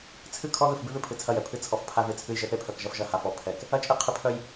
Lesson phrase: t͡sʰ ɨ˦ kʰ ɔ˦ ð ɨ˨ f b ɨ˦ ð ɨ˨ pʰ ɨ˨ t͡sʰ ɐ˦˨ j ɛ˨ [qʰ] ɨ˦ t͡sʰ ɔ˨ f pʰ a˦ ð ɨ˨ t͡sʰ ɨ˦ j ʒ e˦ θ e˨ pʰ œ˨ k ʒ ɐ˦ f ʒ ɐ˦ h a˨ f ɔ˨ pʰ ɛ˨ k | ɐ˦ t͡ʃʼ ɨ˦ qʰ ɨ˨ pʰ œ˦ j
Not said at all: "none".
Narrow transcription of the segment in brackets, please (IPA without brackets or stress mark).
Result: pʰ